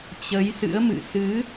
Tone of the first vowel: rising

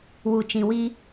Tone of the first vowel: low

